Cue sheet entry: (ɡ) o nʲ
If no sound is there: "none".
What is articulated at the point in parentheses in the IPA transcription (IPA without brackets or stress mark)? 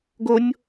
ɡ